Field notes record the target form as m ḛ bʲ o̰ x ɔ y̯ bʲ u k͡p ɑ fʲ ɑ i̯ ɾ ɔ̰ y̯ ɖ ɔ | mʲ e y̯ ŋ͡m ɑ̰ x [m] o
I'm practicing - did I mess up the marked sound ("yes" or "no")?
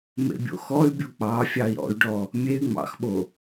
yes